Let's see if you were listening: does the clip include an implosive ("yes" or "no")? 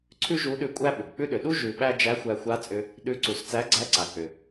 yes